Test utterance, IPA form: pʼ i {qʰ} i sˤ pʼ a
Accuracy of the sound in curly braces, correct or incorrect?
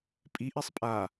incorrect